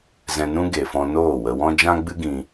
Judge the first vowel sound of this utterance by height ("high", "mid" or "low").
mid